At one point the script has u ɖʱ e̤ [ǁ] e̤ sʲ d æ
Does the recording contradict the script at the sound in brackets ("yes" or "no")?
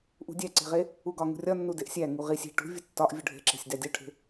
no